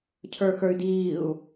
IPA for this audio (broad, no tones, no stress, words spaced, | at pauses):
cʰə˞xə˞y̯diːu̯